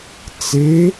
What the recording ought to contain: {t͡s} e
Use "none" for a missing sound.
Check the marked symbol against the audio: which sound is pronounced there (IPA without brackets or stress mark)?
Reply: t͡s